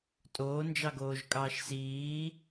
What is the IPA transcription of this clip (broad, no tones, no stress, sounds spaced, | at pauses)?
tʼ oː n d͡ʒ ɑ ɡ oː ʒ kʼ ɑː ʃ s iː